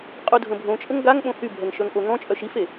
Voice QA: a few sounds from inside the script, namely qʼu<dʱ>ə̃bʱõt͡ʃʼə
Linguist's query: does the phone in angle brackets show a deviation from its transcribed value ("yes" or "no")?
no